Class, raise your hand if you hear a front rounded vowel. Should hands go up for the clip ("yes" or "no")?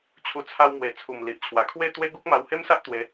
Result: no